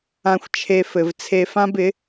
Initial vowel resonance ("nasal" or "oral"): nasal